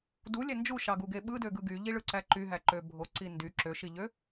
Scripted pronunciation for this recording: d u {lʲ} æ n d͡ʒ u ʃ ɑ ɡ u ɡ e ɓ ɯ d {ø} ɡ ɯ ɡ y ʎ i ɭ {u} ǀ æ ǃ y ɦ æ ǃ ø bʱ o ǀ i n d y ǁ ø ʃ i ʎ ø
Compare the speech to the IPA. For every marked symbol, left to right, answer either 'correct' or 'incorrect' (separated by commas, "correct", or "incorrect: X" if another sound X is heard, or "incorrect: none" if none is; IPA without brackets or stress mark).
correct, correct, incorrect: ɯ